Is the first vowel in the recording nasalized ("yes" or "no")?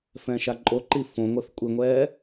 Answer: yes